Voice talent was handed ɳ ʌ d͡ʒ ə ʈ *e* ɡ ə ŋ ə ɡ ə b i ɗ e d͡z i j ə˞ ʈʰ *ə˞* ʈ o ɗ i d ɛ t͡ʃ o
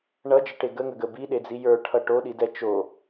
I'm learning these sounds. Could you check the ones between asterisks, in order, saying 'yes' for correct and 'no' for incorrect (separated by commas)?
yes, no